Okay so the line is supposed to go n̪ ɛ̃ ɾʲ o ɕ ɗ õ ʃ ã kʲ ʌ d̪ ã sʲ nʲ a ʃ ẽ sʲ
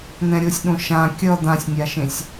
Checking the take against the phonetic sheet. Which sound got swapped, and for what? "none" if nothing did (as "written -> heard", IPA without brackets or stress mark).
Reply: ɕ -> sʲ